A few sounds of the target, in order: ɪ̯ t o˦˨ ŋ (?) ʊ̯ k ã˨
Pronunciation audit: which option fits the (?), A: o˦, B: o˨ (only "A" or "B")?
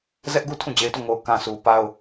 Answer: B